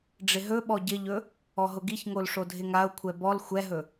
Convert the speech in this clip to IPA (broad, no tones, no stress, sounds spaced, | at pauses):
ɖ͡ʐ ɪ ɦ ɵ ɓ ɔ ɟ ɪ ʎ ɵ | ɔ ɦ ʊ ɡ i ç ŋ o l ʂ o dʱ ɪ ŋ a ʊ̯ kʷʰ ɛ b ɔ l xʷ ɛ ɦ ɵ